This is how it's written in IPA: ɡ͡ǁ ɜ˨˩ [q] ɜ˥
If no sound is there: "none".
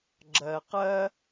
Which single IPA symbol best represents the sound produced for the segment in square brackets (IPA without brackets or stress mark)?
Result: q